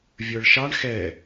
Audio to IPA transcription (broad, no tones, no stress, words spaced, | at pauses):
vʲə˞ɭʃɑɳ xɛ